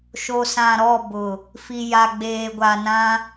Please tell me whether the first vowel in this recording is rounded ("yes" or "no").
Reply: yes